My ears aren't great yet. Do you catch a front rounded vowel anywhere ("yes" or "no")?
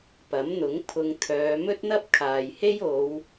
yes